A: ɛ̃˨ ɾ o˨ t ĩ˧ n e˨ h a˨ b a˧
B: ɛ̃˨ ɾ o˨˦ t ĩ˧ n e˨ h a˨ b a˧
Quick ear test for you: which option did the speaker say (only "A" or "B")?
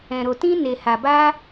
A